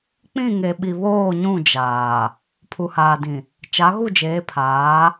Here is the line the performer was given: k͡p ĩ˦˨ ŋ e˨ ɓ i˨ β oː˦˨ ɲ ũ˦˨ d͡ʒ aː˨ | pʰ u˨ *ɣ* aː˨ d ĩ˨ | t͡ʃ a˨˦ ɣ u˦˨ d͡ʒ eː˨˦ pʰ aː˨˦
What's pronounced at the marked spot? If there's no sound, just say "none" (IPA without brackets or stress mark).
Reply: h